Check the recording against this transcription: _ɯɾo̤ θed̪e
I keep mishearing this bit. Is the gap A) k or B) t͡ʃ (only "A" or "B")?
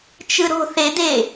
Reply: B